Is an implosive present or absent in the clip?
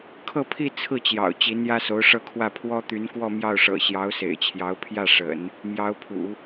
absent